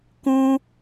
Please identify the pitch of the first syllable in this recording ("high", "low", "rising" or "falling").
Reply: high